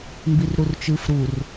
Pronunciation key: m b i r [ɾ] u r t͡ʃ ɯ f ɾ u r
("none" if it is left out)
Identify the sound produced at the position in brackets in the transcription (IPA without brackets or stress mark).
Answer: ɾ